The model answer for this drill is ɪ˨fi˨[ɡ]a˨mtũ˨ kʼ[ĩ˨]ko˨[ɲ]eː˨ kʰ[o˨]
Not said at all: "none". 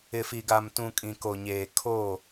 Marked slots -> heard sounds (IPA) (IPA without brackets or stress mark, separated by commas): ɡ, ĩ˨, ɲ, o˦˨